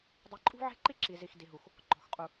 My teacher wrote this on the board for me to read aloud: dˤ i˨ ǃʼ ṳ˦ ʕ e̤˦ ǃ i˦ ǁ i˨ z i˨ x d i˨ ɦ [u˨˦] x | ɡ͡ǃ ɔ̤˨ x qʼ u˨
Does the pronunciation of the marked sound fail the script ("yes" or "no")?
yes